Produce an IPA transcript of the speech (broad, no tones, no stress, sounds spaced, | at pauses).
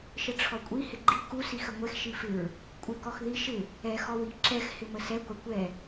ʃ ə ʈ͡ʂʰ ɔ kʷʼ i h ɪ ɡ͡ǃ i k u s i x ə ŋʷ ɛ x ʃ i f ɪ ɹ | kʷʼ ɪ k ɔ x ð i ʃ ɪ | ɛ x ɔ w i ǁ ɛ x h ɪ m ə s ɛ ɡʷ ɛ kʷ ɛ